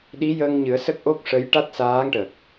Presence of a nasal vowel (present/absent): absent